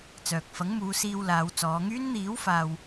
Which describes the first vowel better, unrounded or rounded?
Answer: rounded